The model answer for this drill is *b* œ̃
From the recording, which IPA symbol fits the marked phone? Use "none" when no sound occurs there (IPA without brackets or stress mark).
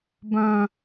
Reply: b